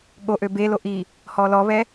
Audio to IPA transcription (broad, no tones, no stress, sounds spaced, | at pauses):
ɠ o ʔ ø b e l o ʔ i | h ɔ l ɔ β ɛ